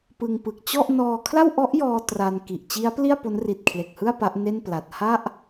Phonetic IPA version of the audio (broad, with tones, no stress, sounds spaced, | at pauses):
p ɯ˧ ŋ p ɯ˨˩ k̚ t͡ɕ ɔ˥˩ ʔ n ɔː˧ kʰ l a˥˩ w ʔ ɔ˦˥ ʔ j ɔː˧ t r a˧ n k i˨˩ ʔ t͡ɕ i˦˥ a̯ p l i˥˩ a̯ p o˦˥ n r i˨˩ t̚ kʰ l e˨˩ k̚ h ɯ˥˩ a̯ p a˦˥ ʔ n e˥˩ n p l a˨˩ t̚ h a˥˩ ʔ